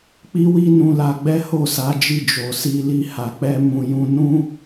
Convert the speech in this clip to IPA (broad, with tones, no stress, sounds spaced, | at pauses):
k͡p i˦ w i˦ n ũ˧ l a˧ ɡ͡b ɛ˦ h o˦˨ s a˨˦ d͡ʒ i˦˨ d͡ʒ o˨ s i˧ l i˧ h a˨ k͡p ɛ˧ m ũ˨ j ũ˧ n ũ˦